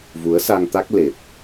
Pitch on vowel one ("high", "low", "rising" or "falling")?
rising